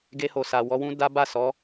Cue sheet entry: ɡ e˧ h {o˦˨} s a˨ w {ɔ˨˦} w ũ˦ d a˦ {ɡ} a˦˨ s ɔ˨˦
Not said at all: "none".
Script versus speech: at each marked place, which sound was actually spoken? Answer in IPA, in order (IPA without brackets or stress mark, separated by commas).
o˨, ɔ˨˦, b